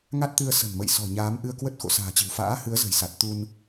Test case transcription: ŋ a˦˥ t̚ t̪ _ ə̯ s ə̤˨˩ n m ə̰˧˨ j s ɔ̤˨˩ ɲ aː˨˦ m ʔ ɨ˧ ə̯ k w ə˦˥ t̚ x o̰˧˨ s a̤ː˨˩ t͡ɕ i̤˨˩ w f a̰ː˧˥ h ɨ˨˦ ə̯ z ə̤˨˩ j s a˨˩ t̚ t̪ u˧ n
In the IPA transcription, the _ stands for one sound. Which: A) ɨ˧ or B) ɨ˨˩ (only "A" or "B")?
A